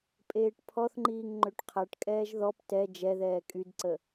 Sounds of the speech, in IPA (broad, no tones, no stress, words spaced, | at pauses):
pʼeːʈpʰɔθŋ͡ǃiːŋ ŋ͡ǃøʈqʰaʈkʼɛːʒ ðɔp tɛ d͡ʒɛðɛː kʼydǀə